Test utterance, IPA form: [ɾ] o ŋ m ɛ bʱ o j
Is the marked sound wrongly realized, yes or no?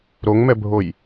no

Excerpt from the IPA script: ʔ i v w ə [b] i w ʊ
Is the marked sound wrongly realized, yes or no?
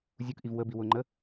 no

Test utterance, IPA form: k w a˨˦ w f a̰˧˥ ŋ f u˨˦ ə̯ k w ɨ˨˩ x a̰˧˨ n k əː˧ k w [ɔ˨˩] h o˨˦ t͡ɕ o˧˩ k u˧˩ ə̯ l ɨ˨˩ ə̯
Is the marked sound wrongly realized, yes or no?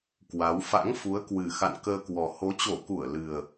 no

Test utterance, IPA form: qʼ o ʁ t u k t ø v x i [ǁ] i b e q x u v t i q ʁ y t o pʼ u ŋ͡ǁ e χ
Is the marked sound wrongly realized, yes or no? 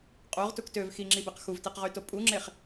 yes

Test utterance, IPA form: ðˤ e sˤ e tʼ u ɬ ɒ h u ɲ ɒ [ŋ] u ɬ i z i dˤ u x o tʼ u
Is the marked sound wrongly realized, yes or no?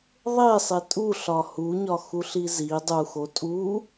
yes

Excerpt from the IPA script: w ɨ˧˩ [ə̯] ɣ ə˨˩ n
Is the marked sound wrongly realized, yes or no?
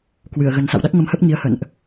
no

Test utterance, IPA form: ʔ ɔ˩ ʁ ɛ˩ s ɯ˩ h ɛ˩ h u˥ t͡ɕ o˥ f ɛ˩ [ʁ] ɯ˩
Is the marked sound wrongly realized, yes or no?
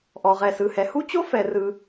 yes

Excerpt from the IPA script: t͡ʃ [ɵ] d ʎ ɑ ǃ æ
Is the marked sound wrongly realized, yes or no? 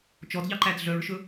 yes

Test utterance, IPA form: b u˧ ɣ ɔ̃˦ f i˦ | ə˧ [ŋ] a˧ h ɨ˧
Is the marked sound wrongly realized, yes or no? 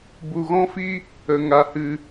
no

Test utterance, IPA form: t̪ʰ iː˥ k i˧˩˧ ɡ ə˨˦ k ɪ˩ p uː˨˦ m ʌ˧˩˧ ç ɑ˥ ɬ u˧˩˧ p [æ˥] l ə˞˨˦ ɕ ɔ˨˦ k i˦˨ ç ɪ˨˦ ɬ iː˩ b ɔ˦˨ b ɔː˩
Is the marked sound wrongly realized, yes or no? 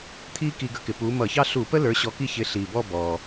yes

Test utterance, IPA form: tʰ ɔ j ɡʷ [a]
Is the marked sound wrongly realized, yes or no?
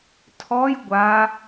no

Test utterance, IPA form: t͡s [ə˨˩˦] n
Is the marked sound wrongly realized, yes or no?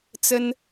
yes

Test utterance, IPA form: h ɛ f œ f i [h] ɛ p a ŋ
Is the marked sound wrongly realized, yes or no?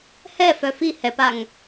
no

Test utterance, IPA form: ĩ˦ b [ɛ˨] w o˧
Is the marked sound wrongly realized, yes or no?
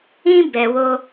no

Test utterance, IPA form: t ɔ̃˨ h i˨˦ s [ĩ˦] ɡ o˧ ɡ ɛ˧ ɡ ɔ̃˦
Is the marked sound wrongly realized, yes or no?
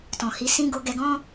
no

